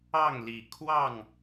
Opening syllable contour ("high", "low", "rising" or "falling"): falling